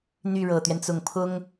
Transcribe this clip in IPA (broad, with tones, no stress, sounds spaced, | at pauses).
n̪ y˥˩ ɻ ɤ˨˩ t̪ ɥ ɛ˦ n t͡s ʊ˨˩ ŋ pʰ ʊ˥ ŋ